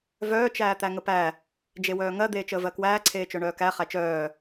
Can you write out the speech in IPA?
v œː t͡ʃ æː t̪ æ ŋ ə p æ | d͡ʒ e w œː ŋ ɜ d̪ eː t͡ʃ əː v ɜ k w æː ǀʰ eː t͡ʃ œ ɳ œː k æ χ æ t͡ʃ œː

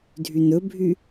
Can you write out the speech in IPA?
dʱ y n̪ ɵ bʱ y

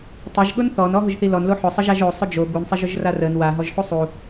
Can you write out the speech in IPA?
tˤ ʊ ʒ ɠ ʊ n θ ɔ n ɔ ɦ ʊ ʒ θ i l ɔ n l o ħ ʊ sˤ ə ʒ a ʒ o sˤ ʊ d͡ʒ o ɡ u n sˤ i ʒ ʊ ʒ r a r ə n w a ɦ ɔ ʒ ħ u sˤ u

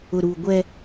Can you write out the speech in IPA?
ʊ˨ ɾ uː˨ ɡʷ ɛ˦

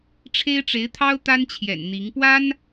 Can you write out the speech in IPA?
ʈ͡ʂʰ e˥ ɪ̯ ʈ͡ʂ e˧˥ ɪ̯ t̪ʰ ɑ˥ ʊ̯ t̪ a˥ n t͡ɕʰ j ɛ̰˨˩ n n̪ i˧˥ ŋ p w a˥ n

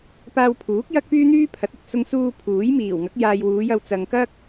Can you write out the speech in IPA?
p aː˧ w pʰ uː˨˥ k̚ j ɐ˥ k̚ p yː˥ n̪ yː˥ pʰ ɐ˨˥ t̚ ɪ˨ k̚ s ʊ˧ ŋ s uː˧ pʰ uː˨˥ j m iː˨˩ w ŋ ɐ˨˥ k̚ j aː˨ j w uː˨˧ j ɐ˧ w t͡s ɐ˨ ŋ k ɐ˥ k̚

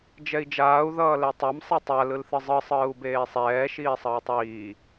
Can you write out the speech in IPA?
d͡ʒ ɛ i̯ d͡ʒ aː u̯ ð ʌː l ɛ tˤ a m sˤ a tˤ a l ɯ l θ ɯ zˤ ɯ sˤ ɯː u̯ b eː sˤ ɛː ʃ iː sˤ ʌː tˤ iː

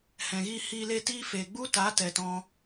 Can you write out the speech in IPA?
h ɛ̃˨ ɣ iː˧ h iː˧ l e˦˨ t iː˦ f e˨ ɡ͡b u˦ t a˨˦ t ɛ˨ t ɔ̃˧

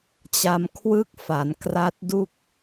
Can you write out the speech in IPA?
t͡ɕ a˧ m kʰ w ɯ˥˩ k̚ f a˩˦ n k r a˦˥ t̚ d u˥˩ k̚

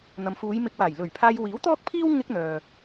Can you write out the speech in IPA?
n̪ ɐ˨ m f uː˨˧ j m ɪ˧ k̚ w aː˨˩ j l ɵ˨˩ ɥ pʰ aː˧ j w iː˨˥ w t̪ ɔː˥ k̚ pʰ iː˥ w ŋ ɪ˥ k̚ n̪ œː˨

